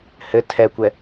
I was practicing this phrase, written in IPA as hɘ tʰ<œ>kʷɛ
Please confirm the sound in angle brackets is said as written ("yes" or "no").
no